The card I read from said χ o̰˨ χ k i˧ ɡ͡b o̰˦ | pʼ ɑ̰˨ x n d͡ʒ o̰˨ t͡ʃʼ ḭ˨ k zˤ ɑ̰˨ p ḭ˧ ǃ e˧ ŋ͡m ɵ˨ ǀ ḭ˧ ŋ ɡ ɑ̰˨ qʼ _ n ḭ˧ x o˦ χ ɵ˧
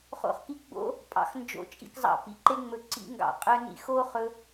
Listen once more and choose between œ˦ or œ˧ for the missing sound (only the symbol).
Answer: œ˧